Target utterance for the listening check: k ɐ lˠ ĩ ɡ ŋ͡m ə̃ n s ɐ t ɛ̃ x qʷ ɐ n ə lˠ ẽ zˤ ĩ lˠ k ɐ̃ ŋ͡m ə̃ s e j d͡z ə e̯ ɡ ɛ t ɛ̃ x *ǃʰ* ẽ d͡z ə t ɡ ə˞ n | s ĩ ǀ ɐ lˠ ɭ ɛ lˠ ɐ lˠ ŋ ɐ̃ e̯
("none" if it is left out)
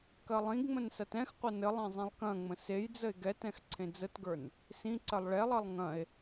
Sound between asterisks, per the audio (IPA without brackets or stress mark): ǀʰ